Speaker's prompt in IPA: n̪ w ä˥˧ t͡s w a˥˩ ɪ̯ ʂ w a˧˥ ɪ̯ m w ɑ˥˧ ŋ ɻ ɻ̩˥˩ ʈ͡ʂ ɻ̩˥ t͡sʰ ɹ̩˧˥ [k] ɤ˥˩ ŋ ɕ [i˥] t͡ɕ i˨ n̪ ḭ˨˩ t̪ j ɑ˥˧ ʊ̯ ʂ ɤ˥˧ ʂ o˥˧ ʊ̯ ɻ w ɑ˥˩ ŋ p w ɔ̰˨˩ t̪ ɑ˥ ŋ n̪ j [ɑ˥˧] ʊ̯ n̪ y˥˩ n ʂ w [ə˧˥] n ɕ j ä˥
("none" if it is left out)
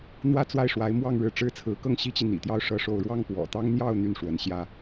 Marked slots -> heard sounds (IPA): k, i˥, ɑ˥˧, ə˧˥

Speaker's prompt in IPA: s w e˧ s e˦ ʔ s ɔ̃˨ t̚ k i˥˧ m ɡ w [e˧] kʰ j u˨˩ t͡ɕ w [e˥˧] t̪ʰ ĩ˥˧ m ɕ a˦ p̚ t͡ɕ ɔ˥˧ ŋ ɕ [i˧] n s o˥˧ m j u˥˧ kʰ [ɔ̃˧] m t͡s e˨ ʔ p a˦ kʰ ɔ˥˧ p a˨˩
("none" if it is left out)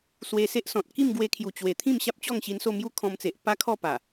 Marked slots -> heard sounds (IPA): e˧, e˨˩, i˧, ɔ̃˧

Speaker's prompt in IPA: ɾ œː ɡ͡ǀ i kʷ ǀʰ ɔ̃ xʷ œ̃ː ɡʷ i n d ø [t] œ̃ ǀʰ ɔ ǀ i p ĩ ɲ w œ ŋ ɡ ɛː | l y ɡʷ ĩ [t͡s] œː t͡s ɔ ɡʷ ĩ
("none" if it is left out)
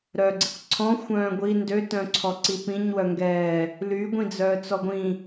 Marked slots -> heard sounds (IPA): t, d͡z

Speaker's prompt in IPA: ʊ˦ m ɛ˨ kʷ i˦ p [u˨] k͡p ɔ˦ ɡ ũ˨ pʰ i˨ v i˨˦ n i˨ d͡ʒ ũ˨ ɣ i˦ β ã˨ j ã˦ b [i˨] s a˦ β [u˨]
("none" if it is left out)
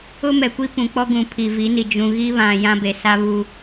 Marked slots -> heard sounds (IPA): ũ˨, e˨, u˦

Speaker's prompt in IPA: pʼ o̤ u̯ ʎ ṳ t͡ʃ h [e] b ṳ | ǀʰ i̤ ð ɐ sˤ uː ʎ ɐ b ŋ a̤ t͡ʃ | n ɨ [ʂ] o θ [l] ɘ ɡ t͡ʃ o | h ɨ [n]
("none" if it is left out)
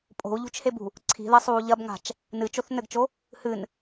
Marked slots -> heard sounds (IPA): e, t͡ʃ, n, n

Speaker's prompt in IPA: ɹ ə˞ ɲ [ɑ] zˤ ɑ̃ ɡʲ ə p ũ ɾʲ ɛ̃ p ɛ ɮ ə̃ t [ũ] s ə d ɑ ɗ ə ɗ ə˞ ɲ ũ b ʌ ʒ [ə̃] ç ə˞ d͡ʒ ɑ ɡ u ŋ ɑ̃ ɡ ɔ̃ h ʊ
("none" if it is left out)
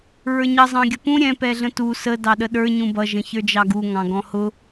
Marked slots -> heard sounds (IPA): ʌ, u, ə̃

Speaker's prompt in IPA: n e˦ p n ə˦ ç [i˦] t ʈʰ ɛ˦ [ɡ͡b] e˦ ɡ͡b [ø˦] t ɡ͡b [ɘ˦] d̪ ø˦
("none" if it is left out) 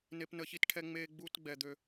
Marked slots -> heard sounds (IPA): i˦, ŋ͡m, u˦, ɛ˦

